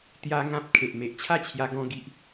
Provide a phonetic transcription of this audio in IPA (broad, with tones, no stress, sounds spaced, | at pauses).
t̪ j a˦ ŋ ã˦ p̚ kʰ e˨ ʔ m e˨ ʔ t͡ɕʰ a˥˧ t͡ɕʰ j a˧ ɡ ɔ̃˦ ɡ i˦ ʔ